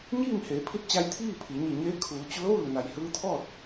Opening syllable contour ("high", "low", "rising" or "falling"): falling